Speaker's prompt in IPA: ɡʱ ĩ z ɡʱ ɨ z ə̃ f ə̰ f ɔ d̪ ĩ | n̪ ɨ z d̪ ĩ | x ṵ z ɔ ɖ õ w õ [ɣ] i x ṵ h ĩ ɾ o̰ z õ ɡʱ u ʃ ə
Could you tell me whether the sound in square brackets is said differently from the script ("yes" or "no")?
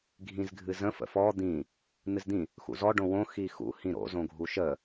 yes